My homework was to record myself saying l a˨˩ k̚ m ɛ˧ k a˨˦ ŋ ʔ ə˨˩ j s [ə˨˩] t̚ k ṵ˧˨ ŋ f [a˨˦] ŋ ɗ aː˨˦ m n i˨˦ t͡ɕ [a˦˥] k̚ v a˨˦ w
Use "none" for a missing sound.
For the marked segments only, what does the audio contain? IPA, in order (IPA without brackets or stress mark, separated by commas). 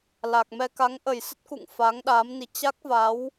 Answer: ə˦˥, aː˨˦, a˦˥